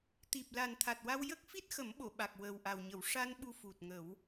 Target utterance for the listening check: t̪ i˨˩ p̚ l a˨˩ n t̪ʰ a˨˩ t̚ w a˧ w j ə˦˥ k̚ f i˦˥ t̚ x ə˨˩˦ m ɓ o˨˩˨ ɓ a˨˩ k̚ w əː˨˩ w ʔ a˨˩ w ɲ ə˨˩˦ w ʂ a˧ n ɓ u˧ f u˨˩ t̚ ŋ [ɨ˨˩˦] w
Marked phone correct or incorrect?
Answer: incorrect